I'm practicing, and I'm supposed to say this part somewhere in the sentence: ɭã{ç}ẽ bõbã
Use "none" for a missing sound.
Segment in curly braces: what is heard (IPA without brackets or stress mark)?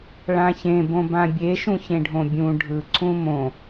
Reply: ç